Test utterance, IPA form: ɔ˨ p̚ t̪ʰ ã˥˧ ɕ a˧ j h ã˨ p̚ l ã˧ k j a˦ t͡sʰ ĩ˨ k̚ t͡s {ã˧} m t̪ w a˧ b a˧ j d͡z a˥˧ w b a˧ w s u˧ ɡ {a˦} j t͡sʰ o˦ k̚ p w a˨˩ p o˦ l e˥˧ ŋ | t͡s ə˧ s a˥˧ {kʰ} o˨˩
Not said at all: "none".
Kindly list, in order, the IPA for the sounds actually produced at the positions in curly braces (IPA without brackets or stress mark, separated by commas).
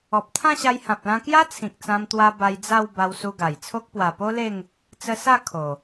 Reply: ã˧, a˨˩, kʰ